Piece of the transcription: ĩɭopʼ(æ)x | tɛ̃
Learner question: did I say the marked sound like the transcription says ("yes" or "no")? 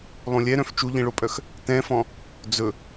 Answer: no